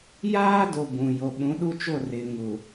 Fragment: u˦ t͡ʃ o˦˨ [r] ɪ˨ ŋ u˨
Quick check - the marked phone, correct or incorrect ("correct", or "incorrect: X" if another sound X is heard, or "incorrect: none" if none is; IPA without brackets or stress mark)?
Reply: correct